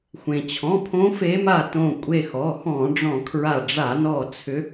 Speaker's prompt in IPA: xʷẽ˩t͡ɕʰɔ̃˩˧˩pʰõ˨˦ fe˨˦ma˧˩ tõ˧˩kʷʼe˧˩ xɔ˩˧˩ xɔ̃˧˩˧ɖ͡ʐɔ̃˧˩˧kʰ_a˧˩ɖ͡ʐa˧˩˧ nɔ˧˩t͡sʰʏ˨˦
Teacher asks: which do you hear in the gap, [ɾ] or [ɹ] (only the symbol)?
ɹ